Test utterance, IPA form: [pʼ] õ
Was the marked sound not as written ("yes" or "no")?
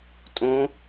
yes